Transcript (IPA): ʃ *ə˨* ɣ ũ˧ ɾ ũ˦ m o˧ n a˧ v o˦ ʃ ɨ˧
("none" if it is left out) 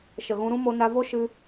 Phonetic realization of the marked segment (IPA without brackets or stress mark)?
ə˨